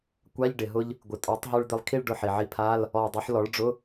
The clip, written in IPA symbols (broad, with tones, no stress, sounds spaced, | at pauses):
kʷ a˧˥˧ ʎ ɖ ɪ˩ ɦ ʊ˧ ʎ | ɡʷ ɪ˩ tʼ ɔ˩˥ tˤ ɦ u˧ ɭ d̪ ɪ˧ lˠ kʰ i˥˧ ɭ ɖ ʊ˧ ħ i˩ ʕ i˧ pʰ a˧˥˧ l | ɔ˧˩ dˤ u˩˥ ħ l ɔ˩˥ ɭ ɖ͡ʐ ʊ˧˥˧